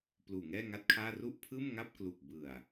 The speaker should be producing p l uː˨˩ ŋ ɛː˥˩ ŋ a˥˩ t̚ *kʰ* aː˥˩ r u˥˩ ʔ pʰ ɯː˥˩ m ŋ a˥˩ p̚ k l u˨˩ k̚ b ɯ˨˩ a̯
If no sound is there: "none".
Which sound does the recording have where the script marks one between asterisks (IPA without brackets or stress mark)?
kʰ